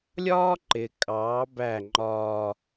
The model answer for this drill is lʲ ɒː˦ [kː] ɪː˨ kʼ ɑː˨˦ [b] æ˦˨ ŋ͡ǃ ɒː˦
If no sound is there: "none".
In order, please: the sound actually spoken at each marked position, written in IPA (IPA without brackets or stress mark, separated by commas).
ǃ, b